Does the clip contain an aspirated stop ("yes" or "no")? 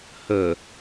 no